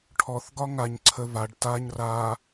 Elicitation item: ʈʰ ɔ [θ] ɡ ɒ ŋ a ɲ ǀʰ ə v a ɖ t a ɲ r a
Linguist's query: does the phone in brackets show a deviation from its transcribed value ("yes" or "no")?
no